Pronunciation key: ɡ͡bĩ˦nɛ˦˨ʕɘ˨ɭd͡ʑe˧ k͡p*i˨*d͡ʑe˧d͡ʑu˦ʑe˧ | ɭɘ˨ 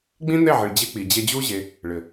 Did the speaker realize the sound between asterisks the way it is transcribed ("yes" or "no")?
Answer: yes